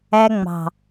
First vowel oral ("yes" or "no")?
yes